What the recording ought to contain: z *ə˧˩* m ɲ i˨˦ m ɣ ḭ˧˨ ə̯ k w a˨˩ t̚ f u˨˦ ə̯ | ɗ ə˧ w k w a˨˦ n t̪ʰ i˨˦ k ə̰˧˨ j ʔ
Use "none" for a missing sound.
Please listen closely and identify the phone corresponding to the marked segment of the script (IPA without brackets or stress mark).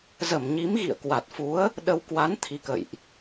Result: ə˧˩